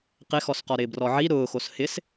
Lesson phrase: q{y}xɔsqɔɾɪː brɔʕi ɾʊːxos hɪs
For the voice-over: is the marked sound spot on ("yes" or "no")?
no